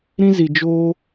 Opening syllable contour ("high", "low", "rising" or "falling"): high